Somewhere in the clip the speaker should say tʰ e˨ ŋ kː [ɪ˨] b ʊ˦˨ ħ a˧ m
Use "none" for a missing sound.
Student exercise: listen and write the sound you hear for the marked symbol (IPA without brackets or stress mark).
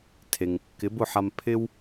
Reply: ɪ˨˦